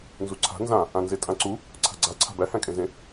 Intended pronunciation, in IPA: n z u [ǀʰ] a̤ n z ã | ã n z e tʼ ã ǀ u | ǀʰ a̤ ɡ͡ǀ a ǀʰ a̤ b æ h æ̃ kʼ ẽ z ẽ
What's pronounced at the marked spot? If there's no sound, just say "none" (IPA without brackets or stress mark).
ǀʰ